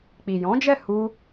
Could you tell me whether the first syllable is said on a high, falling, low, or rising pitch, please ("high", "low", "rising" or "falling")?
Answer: low